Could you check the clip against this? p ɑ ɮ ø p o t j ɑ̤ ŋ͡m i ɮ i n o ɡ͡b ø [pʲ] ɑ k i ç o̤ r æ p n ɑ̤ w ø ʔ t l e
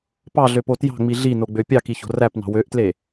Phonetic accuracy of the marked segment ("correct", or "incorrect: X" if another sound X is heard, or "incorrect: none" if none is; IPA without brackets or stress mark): correct